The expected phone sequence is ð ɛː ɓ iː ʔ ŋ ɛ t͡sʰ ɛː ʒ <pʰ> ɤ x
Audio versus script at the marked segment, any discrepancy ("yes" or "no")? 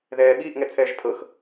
no